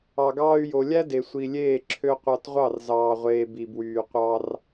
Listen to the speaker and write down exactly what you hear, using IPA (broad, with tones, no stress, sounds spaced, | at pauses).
ɑ˨ ɡ ɑː˦ y̯ j o˨ lʲ æ˦ d e˨ sʷ i˨ lʲ eː˦˨ ǁʰ ø˦ qʷ ɑ˧ t ʁʷ ɑ˦˨ r z ɑː˨ ʁʷ eː˨ b i˨ b w yː˨ qʷ ɑ˧ r